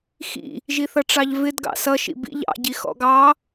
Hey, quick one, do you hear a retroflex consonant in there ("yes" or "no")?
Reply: yes